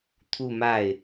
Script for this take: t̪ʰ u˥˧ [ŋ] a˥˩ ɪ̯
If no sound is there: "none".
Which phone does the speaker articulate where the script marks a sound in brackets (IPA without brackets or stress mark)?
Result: m